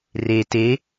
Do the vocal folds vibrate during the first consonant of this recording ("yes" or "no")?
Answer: yes